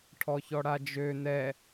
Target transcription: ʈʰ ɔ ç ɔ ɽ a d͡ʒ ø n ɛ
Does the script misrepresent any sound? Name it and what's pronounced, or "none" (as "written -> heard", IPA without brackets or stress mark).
none